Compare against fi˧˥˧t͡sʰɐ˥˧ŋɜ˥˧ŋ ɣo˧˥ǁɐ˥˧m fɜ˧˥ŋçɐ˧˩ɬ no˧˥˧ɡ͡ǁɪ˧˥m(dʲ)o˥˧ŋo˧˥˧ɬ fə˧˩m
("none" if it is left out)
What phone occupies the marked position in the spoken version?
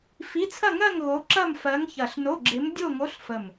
dʲ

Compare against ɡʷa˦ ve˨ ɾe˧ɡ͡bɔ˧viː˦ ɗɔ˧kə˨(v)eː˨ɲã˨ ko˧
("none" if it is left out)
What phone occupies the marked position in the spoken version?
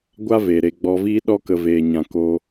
v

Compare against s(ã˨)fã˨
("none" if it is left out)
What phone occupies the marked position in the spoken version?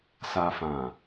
a˨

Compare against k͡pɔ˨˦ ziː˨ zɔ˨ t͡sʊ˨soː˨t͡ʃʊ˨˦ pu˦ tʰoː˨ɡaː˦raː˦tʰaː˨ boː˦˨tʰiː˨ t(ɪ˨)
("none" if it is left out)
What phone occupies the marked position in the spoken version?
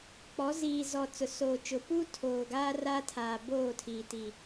i˨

